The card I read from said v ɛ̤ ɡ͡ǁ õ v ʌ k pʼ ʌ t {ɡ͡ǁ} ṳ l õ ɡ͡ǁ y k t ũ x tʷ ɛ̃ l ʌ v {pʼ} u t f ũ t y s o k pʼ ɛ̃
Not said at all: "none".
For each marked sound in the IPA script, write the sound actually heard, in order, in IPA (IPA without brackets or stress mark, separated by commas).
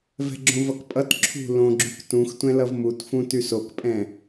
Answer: ǁʰ, m